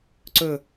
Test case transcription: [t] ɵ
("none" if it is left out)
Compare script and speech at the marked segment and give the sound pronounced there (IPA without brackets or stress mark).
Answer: ǀ